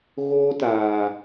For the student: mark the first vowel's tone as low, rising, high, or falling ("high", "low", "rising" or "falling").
high